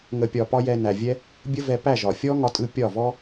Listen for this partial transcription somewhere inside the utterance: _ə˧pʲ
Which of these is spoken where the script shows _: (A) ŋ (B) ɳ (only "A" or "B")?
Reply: A